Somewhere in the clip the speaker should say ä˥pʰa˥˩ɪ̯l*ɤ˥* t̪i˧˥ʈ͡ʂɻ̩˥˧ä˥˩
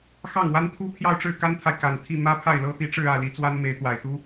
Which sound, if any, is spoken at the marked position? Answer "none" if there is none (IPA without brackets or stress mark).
ɤ˥